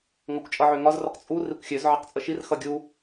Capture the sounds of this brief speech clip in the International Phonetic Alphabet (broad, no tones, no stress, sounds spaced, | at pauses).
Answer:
ŋ ʌ kʷ t͡ʃʼ ʌ ʕ ø ŋ ɒ z r ə q t͡sʼ u r i kʷ xʲ ø z ʕ ʌ q t͡sʼ ə ʃ i r x ʌ ɡʲ u